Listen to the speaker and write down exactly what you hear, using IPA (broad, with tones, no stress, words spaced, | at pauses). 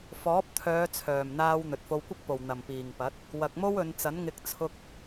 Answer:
fɔː˨˥p̚t̪ʰœː˨˧ t͡sʰœː˨˩mn̪aː˧w n̪ɵ˨t̚fo˧wkʷɪ˥k̚po˨w n̪ɐ˨˩mpiː˨˩ŋpɐ˨˥t̚ | wɐ˨k̚mo˥wɵ˨˧n t͡sɐ˨˥nŋɪ˧k̚ t͡sʰʊ˧k̚